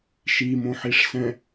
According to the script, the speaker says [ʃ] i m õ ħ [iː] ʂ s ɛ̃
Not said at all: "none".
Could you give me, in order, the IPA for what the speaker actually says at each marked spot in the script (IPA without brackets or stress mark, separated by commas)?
ʃ, i